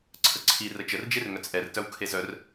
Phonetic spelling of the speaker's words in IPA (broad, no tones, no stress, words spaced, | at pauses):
ǀʰəǀʰi rət͡ʃərd͡ʒerŋœt͡s ʔɛrtœw kʰezœr